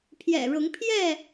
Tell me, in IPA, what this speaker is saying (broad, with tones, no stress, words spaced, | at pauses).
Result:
pʰjɛ̰˨˩ɻʊ˨˦ŋ pʰjɛ˥˨